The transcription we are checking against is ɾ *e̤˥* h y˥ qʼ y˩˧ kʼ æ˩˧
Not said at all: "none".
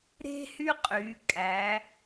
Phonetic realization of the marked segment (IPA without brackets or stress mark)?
e̤˥